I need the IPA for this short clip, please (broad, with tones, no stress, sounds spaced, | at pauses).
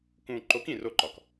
k ũː˨ ǃ o˨˦ k ĩ˨ r o˦˨ ǃ ɒ˨ k